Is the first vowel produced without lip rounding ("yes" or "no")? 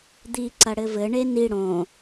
yes